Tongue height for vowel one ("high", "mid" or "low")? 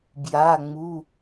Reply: low